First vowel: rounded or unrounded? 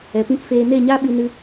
unrounded